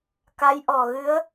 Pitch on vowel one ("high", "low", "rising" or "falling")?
rising